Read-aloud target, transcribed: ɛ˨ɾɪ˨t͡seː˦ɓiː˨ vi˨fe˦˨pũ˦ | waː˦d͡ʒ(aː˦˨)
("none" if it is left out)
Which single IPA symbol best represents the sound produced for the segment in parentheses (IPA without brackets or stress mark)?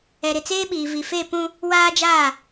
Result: aː˦˨